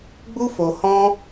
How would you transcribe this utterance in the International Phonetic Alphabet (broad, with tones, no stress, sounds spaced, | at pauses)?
ɡ͡b u˦ f o˧ h ɔ̃˦